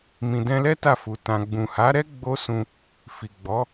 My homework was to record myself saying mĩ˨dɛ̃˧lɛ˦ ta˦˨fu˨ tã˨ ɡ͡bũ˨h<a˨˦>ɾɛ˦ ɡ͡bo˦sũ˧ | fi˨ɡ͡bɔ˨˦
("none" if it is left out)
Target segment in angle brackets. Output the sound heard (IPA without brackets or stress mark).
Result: a˨˦